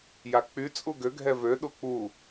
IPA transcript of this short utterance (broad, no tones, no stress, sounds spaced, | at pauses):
j a k͡p y t͡sʼ u ɡ ø ɡʱ ɛ v ø ɗ u k͡p u